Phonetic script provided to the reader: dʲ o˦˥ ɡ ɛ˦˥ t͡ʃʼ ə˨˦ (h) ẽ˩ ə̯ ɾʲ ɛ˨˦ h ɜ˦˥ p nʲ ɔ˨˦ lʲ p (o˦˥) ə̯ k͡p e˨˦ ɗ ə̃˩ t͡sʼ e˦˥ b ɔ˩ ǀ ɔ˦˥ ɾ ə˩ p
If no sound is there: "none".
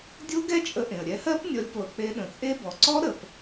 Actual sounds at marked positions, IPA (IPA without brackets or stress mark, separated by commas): ʔ, o˩